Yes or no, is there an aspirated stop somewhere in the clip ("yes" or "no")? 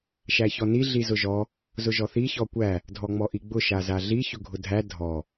no